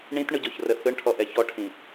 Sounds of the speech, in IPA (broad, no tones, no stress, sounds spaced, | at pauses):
ɳ ĩ t ɳ ɯ ɟ ɔ ç r ə θ ɯ ɳ ʈʰ ɔ ʔ ɛ ç ɔ ʈʰ ĩ